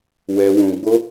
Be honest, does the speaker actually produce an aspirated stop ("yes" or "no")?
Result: no